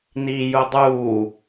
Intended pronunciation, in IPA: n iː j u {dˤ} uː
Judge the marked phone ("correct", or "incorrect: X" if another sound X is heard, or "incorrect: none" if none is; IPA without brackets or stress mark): correct